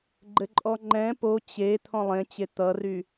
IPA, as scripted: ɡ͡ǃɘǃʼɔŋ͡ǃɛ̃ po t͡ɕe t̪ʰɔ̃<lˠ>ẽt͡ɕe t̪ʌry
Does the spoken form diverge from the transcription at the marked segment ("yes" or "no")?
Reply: no